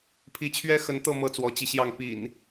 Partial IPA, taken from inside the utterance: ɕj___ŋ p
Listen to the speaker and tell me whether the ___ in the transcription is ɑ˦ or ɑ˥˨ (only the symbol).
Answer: ɑ˥˨